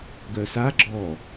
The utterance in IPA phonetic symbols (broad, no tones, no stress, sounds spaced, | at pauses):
ɡ œ s a ɡ͡ǁ ɔ